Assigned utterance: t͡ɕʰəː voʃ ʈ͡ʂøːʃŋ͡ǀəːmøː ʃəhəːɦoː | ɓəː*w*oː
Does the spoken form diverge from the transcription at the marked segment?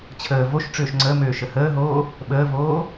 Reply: yes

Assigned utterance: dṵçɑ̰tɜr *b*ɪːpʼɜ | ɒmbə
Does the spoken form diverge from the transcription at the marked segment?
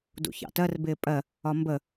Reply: no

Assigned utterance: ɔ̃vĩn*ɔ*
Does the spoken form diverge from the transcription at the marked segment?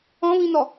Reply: no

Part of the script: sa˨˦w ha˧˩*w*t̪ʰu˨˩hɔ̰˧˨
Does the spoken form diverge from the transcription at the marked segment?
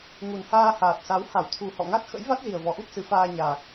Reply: no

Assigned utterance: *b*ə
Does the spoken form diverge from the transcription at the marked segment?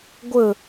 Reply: yes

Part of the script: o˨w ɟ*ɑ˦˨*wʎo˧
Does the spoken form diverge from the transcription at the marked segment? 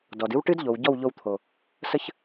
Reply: yes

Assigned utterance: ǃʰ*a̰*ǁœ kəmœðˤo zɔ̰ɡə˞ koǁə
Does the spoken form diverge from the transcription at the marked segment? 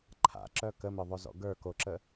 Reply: no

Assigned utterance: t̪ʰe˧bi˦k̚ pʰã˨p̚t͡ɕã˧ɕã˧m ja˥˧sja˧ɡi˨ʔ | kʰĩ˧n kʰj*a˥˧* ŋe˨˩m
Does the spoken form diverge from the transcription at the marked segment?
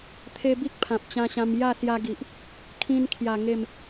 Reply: yes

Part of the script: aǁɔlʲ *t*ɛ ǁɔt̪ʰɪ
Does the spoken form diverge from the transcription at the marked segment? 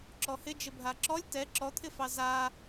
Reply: no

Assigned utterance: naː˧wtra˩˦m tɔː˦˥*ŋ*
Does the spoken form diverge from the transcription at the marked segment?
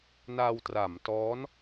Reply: yes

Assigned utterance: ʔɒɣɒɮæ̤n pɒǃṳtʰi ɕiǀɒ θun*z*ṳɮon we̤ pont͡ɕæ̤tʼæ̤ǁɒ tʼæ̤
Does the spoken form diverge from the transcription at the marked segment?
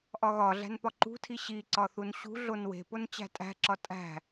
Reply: yes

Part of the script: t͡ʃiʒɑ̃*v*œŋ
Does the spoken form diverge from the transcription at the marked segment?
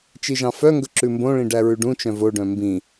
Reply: yes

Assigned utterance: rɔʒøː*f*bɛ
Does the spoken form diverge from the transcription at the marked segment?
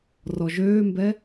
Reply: yes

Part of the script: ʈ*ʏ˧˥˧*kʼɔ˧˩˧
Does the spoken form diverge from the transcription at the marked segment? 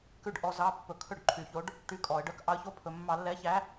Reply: yes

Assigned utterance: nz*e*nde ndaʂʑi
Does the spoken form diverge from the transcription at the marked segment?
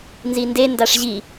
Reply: yes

